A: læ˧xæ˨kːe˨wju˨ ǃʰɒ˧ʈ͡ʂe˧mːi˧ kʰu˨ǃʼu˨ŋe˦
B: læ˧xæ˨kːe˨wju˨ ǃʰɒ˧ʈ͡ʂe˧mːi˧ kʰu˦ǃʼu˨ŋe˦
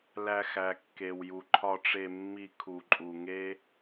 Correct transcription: A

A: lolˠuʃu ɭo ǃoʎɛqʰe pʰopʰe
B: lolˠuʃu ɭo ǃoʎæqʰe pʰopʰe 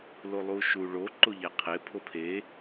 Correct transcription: B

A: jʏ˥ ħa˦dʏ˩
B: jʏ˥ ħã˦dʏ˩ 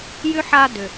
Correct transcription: A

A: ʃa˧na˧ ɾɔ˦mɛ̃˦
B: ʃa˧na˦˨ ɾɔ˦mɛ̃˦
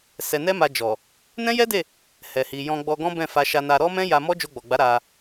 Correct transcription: A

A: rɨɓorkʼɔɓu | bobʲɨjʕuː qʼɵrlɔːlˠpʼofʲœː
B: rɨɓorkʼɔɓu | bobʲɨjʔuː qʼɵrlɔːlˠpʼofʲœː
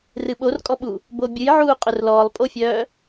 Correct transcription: A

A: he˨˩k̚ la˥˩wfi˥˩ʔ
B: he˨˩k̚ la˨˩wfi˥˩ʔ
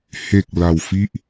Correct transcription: B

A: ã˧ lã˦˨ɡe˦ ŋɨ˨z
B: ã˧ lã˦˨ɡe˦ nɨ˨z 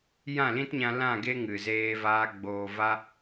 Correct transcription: A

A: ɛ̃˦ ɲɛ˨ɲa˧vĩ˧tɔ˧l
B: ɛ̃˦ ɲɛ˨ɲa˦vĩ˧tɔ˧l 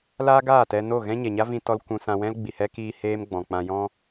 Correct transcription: B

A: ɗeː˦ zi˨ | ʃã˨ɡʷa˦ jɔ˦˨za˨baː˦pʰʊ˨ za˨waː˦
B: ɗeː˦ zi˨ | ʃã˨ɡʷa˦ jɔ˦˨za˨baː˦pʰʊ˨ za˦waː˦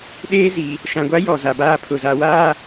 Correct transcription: A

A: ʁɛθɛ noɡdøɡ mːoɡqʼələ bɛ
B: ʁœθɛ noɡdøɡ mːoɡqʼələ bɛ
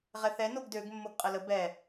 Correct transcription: A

